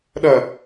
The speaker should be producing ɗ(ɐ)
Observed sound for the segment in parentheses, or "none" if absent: ɐ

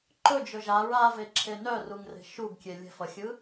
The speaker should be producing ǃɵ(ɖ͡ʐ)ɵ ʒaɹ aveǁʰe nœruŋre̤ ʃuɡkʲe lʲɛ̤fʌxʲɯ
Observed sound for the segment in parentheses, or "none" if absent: d͡ʒ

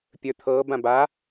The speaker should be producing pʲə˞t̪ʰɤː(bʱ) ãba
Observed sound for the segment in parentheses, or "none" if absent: b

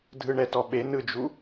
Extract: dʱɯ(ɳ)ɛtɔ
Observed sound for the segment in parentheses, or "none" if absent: ɳ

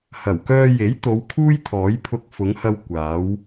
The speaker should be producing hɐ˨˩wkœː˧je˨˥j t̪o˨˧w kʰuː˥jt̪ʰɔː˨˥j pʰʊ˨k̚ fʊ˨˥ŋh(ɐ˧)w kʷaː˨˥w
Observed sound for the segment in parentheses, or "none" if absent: ɐ˧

